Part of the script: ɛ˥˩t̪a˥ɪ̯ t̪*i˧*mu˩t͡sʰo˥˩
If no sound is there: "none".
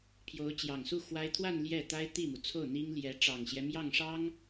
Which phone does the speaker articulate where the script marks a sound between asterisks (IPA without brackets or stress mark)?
i˥˩